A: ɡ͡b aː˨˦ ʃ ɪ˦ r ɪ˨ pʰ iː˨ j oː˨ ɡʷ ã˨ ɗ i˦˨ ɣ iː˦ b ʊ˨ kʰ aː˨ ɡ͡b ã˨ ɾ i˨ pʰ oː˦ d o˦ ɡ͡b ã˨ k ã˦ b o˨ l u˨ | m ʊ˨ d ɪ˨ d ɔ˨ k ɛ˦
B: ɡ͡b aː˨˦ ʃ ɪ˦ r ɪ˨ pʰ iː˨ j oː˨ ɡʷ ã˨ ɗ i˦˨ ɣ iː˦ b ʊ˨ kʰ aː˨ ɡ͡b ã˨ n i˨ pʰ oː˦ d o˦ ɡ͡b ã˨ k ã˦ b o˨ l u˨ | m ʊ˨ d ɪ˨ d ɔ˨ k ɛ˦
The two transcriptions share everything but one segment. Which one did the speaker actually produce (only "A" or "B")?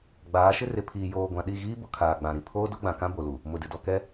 A